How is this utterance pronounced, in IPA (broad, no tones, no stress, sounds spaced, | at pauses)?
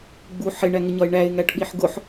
ɡ͡b u ħ ɪ ɳ æ ŋ ɪ ɲ ɒ ɪ̯ ɳ æ ɪ̯ ŋ æ ʈ ɓ i ħ ɡ ʊ ħ